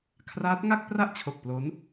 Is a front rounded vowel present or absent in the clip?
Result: absent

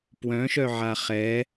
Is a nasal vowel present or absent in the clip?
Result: present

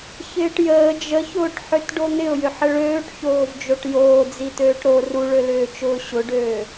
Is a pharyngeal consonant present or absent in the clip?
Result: present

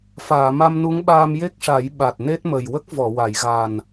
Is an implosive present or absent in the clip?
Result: present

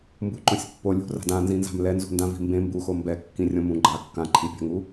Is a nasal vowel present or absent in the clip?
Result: present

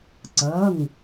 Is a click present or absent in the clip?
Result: present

